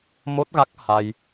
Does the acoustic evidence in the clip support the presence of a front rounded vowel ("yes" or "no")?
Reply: no